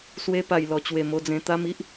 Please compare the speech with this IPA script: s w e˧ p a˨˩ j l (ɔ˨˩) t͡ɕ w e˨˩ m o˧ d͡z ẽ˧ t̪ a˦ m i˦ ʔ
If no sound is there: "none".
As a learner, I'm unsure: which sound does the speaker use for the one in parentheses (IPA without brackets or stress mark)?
ɔ˨˩